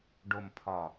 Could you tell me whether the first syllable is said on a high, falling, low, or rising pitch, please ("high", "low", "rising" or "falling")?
low